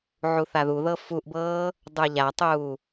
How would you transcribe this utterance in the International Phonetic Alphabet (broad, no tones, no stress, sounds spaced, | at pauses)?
ʕ u θ a ð u ð ɤ f u ʔ b ɤː | dˤ ə˞ ʎ a tˤ uː